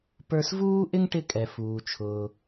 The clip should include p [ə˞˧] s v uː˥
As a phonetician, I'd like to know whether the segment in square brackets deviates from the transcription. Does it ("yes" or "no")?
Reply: no